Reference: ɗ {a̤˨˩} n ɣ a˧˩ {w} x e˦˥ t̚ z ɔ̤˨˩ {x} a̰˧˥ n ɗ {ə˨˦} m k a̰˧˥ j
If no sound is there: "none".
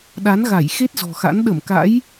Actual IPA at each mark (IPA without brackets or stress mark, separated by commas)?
a˨˦, j, x, ə˧˩